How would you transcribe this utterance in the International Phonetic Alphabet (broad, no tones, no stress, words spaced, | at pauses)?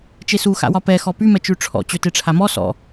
t͡ʃesuxa̰wɒ pɛ xɔpy mɛt͡ʃʉʈ͡ʂʰɔ̰ t͡ɕøteʈ͡ʂʰamɔ sɔ̰